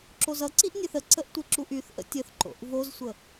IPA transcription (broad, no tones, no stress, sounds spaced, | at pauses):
ǁ o z ʌ ǀ i ʔ nʲ ø θ ə ǀ ə ʔ tʷ e ǁ u ʔ y θ ʔ ə̰ tʲ ə θ ǃ o̰ ʔ v o z sʷ ə